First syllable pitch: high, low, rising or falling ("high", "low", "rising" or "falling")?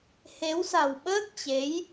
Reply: rising